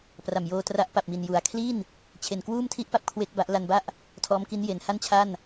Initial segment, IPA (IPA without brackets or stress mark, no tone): p